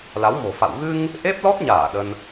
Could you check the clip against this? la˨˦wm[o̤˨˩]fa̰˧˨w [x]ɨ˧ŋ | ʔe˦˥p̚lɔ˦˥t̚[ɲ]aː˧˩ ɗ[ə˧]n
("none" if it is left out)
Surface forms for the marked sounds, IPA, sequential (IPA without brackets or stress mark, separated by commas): o̤˨˩, ɣ, ɲ, ə˧